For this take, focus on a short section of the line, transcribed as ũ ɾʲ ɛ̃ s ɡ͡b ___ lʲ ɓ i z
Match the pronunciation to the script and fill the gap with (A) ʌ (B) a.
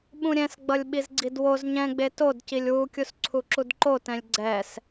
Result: A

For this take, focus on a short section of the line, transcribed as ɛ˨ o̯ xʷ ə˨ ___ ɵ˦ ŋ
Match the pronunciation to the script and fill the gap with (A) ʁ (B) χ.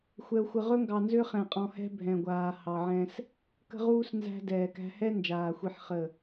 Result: A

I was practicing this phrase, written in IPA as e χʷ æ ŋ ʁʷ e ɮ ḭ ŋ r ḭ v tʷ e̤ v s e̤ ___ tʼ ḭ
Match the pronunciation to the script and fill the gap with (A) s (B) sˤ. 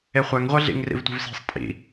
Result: B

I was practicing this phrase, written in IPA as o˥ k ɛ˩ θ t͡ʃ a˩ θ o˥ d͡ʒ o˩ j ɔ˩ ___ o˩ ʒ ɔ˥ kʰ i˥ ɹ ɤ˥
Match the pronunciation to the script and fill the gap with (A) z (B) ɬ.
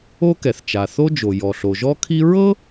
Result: B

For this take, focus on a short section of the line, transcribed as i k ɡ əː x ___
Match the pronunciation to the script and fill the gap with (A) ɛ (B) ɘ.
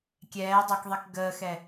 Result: A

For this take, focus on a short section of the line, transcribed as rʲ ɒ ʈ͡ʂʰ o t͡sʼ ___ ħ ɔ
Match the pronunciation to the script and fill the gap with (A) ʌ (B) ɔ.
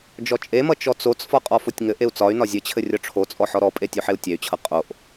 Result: B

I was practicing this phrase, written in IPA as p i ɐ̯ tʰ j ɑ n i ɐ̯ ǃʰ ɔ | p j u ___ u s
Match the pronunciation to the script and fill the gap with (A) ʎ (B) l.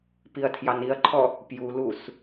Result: B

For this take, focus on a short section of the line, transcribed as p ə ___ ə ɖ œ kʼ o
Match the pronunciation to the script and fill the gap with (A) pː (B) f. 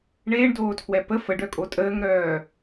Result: B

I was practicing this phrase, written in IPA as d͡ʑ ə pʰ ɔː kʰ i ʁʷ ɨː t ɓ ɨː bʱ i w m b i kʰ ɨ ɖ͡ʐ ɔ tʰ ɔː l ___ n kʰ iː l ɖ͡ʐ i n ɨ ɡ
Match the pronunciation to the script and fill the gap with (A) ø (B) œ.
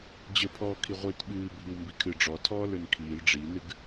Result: A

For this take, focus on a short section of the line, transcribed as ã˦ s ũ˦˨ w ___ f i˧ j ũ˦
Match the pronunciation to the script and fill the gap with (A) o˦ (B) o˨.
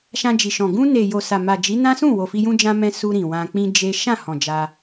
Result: B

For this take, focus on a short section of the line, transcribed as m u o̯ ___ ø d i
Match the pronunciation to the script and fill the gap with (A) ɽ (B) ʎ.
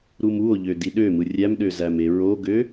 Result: B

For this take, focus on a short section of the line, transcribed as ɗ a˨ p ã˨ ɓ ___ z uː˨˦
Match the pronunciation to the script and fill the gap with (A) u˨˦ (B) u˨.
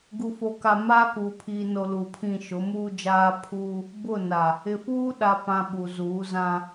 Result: B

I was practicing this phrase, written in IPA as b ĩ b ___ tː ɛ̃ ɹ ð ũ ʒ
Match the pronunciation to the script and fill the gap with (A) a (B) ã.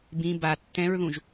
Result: A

